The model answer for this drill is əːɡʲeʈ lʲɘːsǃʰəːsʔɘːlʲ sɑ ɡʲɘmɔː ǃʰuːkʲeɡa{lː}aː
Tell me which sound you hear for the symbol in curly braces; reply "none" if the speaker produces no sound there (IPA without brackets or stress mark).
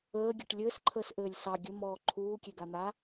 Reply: n̪